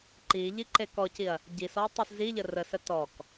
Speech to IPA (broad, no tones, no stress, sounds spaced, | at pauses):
ǃ i ʎ i ǃ e k ɔ c i ɐ̯ | ɟ i s ɔ tˤ i s z i ʎ ə r ə s ə t ɔ k